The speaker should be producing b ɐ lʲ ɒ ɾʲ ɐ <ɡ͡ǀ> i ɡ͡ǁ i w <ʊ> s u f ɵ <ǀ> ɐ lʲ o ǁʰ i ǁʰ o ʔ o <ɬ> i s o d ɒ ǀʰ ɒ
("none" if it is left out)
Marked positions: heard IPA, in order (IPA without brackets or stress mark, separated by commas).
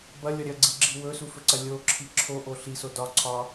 ɡ͡ǀ, ɵ, ǀ, ɬ